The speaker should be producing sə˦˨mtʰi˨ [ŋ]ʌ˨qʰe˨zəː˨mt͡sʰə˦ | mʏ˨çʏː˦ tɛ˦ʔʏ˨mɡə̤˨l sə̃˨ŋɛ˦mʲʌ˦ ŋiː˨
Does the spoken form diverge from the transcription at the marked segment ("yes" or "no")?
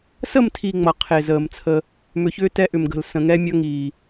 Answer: yes